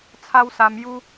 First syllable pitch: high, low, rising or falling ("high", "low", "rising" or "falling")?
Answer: high